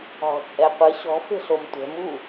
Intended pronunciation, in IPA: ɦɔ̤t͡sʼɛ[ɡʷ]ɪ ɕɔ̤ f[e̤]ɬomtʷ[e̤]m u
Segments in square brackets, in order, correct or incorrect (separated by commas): incorrect, correct, incorrect